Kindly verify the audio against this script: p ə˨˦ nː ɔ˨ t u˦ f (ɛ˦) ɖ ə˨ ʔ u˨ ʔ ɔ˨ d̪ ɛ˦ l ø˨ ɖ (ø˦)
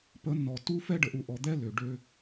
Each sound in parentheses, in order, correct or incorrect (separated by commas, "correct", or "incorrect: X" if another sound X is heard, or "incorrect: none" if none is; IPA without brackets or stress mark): correct, correct